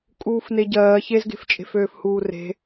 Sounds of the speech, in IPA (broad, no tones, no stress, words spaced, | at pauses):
kʼuːfneɟɜː çezɡe̤ft͡ʃʼe̤f øːfhuːre̤